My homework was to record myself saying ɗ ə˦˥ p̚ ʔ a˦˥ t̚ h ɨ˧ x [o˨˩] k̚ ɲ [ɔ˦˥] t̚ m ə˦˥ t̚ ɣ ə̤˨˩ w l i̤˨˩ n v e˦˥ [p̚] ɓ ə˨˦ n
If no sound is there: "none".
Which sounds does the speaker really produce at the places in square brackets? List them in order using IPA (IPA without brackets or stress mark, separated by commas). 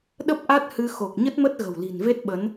o˨˩, ə˦˥, t̚